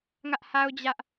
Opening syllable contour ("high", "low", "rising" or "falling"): high